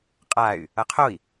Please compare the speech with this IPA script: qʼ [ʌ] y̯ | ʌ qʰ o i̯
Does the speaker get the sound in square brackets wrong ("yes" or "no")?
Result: yes